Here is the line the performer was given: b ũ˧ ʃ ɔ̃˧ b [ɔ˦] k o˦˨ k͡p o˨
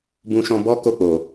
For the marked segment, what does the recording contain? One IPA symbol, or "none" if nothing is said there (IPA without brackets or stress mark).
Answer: ɔ˦